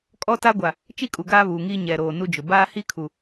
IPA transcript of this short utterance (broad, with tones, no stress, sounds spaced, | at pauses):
kʼ ɔ˦ t a˦ ɡʷ a˨ | t͡ʃ i˦ kʼ u˨ ɡ aː˦ β uː˨ ŋ iː˦ ɲ ɛ˨ ɾ oː˨ n u˦ d͡ʒ ʊ˨ b aː˦ h i˦ kʰ u˨